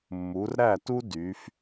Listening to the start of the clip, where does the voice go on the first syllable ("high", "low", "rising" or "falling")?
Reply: rising